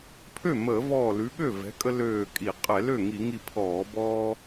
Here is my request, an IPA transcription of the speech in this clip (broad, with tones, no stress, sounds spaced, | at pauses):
pʰ ø˥˩ m əː˧˩˧ v ɔː˧˩ l ʉ˨˥ ɠ ø˥˩ v ɛ̤˨˥ kʼ ə˦ l øː˧˩ kʼ i˧˩˧ qʼ ɛ˧˩˧ l ø˥˩ ŋ i˧˩˧ ŋ i˧˩ pʰ ɔː˧˩˧ b ɔː˦